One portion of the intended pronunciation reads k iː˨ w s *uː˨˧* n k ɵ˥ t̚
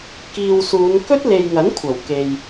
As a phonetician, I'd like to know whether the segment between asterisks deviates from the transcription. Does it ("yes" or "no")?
no